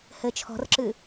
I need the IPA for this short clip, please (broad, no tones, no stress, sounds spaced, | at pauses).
h ɘ t͡ʃʰ ɔ̤ r ǁ ɨ